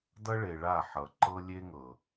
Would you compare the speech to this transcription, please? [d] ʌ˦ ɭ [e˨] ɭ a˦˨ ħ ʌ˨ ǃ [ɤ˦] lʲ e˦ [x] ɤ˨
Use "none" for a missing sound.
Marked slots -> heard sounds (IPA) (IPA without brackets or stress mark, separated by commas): d, e˨, ɤ˦, ŋ